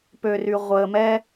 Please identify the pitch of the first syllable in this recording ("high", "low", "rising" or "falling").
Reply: low